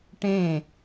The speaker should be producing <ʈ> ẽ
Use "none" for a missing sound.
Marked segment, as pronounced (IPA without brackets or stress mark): ʈ